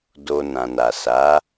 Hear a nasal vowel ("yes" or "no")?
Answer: yes